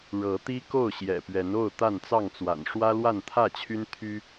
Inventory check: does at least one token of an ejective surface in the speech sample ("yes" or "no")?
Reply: no